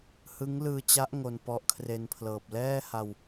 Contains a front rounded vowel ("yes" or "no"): no